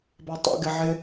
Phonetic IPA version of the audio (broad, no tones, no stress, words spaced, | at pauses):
batˤo̰ ɡɪʕɪ